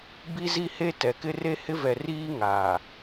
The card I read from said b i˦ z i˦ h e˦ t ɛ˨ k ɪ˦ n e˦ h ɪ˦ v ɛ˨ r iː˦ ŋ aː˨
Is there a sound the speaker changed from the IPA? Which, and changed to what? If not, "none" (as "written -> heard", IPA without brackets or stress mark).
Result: n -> r